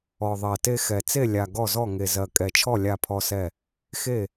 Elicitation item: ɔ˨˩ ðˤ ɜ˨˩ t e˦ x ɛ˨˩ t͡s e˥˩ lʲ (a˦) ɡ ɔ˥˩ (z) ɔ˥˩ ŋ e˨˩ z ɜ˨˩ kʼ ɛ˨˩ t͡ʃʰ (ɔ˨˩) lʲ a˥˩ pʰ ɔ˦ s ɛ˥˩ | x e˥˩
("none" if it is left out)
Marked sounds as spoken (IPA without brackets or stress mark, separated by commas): a˨˩, z, ɔ˥˩